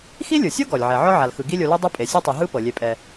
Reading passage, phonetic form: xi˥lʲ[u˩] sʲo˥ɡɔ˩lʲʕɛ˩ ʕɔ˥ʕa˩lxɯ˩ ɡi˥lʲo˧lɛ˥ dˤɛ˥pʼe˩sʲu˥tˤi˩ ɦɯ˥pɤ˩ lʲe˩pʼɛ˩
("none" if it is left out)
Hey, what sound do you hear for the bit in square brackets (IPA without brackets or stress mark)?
ɯ˩